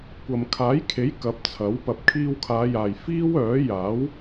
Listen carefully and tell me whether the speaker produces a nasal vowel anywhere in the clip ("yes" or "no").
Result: no